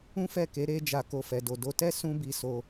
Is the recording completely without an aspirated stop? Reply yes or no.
yes